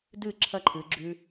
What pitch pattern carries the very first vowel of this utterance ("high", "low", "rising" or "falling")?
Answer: falling